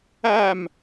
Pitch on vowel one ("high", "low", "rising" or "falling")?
falling